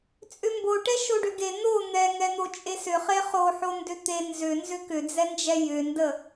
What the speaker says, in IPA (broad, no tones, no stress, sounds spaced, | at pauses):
t͡sʼ ʏ m b o ʈ ɛ ʃ o ɖ ʏ ɡ e n̪ o n̪ ɛ ŋ ɛ n̪ o t͡ʃʼ e s ʏ χ e χ o ħ o n d ʏ t̪ e n z ʏ n z ʏ k ʏ d͡z ɛ n d͡ʒ ɛ j ʏ n d ə